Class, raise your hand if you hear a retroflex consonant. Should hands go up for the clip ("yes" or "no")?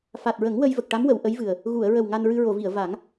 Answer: yes